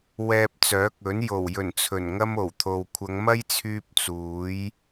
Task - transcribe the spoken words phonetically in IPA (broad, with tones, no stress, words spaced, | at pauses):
wɛː˧p̚t͡sœː˨˥k̚ɵ˨˥n jo˨˩wjɵ˨˩n t͡sʰɵ˨˩nŋɐ˥mo˨˩wt̪ʰo˨w kʷʰɐ˨˧ŋmɐ˥jt͡sʰyː˧p̚ t͡suː˨˥j